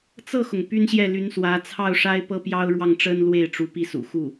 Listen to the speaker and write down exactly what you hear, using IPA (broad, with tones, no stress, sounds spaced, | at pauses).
t͡s ɤ˥˩ x ʊ˩ ŋ p y˥ n ɕ j ɛ˥˩ l y˧˥ n s w ä˧˥ t͡sʰ ɑ˥˩ ʊ̯ ʂ a˥ ɪ̯ p ɤ˥ p j ɑ˥ ʊ̯ ɻ w ɑ˥˩ ŋ ʈ͡ʂ ə˥ n l w e˥˩ ɪ̯ ʈ͡ʂ u˧˥ p i˥˩ s ṵ˨˩ x u˥˩